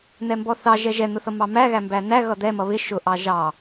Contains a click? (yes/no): no